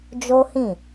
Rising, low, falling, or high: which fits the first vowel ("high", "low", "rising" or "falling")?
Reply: high